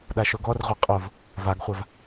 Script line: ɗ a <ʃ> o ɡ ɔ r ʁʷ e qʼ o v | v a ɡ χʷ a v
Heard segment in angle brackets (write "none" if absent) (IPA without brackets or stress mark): ʃ